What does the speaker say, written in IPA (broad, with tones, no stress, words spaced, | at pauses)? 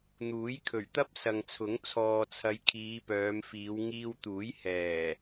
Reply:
n̪uː˨˥jkʰɵ˨˩ɥt̪ɐ˥p̚ sɐ˨ŋt͡sʰʊ˨˥ŋ t͡sʰɔː˨t͡sʰɐ˨˧j kʰiː˨˧pœː˨˧mfiː˨˧w ŋiː˧wt̪uː˨˥j hɛː˨˩